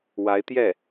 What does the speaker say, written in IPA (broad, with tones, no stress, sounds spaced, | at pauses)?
w a˧˥ ɪ̯ t̪ j ɛ˥˩